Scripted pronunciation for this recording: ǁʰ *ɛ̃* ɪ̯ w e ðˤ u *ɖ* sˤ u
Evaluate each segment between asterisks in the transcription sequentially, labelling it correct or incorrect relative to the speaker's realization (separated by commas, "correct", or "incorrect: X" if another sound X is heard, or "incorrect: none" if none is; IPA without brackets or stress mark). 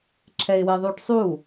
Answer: incorrect: ɛ, correct